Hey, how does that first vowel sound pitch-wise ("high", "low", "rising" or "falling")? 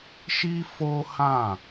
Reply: high